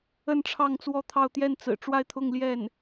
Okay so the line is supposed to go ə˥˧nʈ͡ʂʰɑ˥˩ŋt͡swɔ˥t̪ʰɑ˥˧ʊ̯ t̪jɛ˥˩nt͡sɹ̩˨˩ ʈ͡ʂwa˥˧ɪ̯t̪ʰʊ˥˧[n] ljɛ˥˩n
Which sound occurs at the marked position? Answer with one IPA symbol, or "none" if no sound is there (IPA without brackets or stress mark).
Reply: ŋ